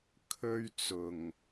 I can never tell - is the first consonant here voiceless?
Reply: yes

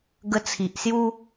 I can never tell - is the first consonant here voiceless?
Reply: no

